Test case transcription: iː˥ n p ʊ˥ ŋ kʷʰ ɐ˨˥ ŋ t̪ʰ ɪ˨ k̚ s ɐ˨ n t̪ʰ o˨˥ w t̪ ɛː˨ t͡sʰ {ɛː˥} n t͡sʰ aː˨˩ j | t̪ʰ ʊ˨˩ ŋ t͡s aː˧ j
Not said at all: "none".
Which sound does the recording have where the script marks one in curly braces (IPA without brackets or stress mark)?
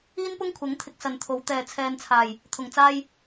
ɛː˨